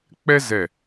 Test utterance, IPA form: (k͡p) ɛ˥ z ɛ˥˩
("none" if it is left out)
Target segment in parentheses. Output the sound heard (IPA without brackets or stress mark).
k͡p